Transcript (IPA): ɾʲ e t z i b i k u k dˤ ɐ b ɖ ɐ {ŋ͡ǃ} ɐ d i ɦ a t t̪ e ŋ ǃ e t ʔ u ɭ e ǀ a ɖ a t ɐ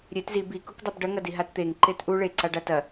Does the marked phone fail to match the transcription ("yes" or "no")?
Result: yes